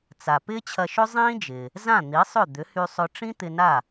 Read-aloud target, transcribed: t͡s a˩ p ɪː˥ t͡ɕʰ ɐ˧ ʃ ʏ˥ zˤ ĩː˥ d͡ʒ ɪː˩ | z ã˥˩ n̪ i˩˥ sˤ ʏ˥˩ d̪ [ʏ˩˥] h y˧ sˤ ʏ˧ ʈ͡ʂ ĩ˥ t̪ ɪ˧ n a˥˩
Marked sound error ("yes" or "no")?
no